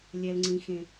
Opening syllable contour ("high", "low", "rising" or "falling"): high